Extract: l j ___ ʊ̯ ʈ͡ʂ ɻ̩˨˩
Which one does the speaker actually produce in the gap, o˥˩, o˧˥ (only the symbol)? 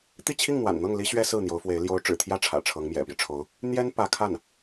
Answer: o˧˥